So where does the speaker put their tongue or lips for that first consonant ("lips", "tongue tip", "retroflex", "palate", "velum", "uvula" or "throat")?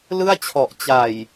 tongue tip